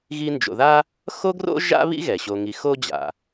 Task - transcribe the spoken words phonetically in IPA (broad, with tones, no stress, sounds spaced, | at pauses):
ɣ i˦ n d͡ʒ o̰˨ ð a˥ | x o˦ ɡ r o̰˦ ʒ a̰˦ β ḭ˦ ɣ ɛ˩ ɕ o˨ ŋ i˨ x o˥ d͡ʑ a̰˩